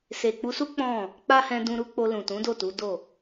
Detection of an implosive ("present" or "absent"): absent